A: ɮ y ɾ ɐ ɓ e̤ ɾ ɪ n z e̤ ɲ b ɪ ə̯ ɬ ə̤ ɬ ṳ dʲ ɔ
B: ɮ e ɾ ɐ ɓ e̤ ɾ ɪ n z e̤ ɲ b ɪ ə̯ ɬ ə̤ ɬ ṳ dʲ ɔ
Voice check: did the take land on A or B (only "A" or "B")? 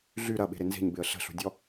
A